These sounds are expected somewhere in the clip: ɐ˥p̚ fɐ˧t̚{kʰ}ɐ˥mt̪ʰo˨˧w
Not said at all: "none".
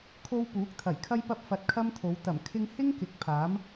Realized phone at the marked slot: kʰ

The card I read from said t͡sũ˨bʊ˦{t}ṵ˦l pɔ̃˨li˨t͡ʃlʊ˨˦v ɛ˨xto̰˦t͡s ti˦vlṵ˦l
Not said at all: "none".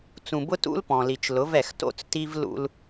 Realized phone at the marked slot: t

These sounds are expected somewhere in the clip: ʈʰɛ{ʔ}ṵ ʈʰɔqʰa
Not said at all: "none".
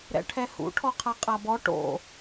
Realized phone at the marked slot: h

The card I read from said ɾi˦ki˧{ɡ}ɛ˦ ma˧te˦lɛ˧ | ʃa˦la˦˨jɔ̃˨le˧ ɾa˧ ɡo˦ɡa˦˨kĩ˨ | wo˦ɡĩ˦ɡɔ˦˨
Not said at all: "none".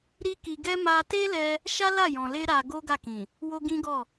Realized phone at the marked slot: ɡ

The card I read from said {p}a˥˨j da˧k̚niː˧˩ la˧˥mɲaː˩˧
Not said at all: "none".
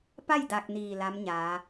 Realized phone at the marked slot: p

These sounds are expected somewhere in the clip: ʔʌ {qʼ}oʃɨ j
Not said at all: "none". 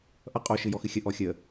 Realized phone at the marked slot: qʼ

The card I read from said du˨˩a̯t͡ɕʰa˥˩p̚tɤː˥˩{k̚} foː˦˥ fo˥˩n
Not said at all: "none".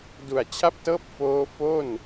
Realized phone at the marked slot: p̚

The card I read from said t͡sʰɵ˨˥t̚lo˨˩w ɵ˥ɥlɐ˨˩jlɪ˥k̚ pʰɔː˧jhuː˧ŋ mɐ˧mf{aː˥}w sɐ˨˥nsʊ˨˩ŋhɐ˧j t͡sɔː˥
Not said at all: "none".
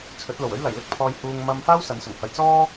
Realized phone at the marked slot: aː˥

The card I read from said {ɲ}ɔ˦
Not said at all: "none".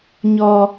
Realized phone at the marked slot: ɲ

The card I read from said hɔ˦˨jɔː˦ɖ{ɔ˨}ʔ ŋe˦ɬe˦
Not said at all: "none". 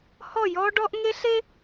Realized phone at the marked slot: ɔ˦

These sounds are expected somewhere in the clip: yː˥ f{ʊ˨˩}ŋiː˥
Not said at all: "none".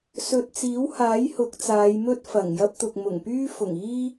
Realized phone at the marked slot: ʊ˨˩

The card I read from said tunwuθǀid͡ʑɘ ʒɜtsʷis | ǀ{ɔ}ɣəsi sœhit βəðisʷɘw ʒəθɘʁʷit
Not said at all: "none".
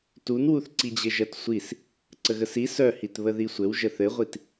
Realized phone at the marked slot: ə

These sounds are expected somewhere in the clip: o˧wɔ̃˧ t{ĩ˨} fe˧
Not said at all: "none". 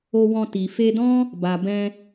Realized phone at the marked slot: i˨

